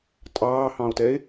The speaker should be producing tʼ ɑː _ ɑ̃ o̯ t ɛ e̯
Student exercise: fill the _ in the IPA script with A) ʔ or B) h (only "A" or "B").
B